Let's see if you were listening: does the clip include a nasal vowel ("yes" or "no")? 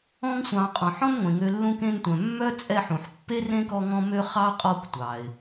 yes